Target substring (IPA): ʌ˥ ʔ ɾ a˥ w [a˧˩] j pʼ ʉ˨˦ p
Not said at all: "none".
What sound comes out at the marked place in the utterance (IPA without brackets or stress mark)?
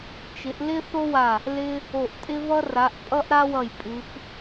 ʌ˧˩